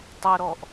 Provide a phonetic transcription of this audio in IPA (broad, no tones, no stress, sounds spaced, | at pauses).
tˤ ʊ ɾ ɔ ʔ